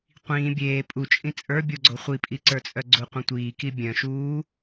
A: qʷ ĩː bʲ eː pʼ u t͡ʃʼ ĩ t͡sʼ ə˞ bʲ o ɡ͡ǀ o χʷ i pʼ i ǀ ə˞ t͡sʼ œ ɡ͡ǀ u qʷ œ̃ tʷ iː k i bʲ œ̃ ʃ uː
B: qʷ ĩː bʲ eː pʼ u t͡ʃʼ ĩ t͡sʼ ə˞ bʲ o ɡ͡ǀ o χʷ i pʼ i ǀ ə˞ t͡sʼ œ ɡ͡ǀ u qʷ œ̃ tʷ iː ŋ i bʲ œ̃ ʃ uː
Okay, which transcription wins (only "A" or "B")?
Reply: A